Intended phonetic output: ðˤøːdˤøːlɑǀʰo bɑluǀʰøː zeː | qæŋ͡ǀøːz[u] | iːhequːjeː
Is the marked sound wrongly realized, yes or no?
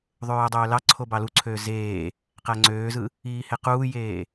yes